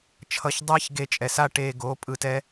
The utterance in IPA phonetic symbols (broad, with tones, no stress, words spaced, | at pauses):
t͡ʃʰʌ˨˦ç dˤɛː˦çɡe˧t͡ʃʼɛ˨ sa˦ʈeː˧ ɡoː˨˦pʼɯ˧tɛ˦